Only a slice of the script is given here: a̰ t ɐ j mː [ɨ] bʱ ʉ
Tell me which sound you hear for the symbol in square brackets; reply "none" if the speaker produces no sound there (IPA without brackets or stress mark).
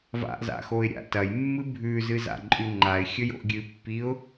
ɨ